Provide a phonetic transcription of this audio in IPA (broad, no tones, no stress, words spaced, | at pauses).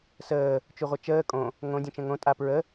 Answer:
səː | t͡ʃuʁʷət͡ʃəː kʼõ | ŋõ dʲõt͡ʃə̃ŋõ tʼapɹə